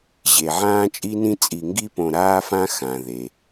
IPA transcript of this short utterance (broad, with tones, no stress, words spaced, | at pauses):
ʑe˩ʕãː˥t͡ʃʼi˥nĩ˥ t͡sʼi˨ŋɡi˦põ˨ ɾaː˦fã˦ xã˩ðe˩